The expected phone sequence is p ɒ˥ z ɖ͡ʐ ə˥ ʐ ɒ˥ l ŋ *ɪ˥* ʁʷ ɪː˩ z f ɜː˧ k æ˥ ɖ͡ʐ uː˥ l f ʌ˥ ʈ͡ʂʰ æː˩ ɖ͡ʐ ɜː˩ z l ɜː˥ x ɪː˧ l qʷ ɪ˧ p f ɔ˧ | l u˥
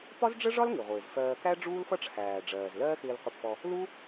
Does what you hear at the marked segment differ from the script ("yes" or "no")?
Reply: yes